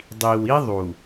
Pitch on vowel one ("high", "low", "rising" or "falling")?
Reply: low